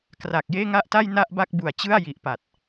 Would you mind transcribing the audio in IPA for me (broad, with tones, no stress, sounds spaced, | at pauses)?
k r a˨˩ k̚ j eː˥˩ ŋ a˥˩ ʔ t a˥˩ j n a˥˩ ʔ b a˥˩ k̚ b u˨˩ a̯ t͡ɕ ɯ˥˩ a̯ j i˨˩ ʔ p a˨˩ t̚